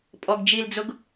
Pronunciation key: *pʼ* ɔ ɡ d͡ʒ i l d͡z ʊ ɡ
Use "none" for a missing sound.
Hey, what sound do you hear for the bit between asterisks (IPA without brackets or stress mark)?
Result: pʼ